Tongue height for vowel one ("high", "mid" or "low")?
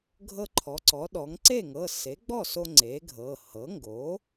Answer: mid